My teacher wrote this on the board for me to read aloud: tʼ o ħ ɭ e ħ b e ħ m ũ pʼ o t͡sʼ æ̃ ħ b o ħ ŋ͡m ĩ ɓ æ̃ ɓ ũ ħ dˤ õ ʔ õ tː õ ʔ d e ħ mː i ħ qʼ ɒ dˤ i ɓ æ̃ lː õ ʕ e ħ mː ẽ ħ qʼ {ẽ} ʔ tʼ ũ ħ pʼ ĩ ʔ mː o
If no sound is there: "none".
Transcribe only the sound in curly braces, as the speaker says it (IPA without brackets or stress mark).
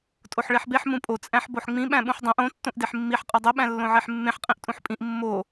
ĩ